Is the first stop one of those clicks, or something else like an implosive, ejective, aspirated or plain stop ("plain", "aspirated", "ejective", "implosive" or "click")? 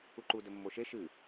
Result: click